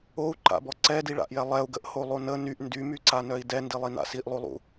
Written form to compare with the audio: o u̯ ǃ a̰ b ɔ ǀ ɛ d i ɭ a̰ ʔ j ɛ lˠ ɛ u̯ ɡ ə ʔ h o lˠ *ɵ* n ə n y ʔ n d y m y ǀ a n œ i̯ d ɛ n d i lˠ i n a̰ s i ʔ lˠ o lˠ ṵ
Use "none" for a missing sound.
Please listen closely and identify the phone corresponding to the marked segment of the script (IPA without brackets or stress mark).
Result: o